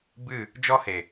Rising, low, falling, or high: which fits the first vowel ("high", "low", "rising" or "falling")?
falling